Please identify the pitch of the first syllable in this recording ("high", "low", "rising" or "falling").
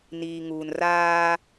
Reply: low